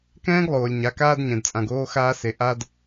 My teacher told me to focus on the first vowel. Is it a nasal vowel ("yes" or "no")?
yes